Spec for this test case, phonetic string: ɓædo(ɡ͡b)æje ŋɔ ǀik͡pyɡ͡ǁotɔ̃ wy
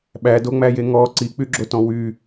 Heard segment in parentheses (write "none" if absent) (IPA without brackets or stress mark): ŋ͡m